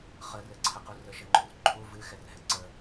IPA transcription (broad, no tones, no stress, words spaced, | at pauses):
χərɘǀʰəqu rəʃəŋ͡ǃʏrǃʰu vɨxɛrɦɛ ǀə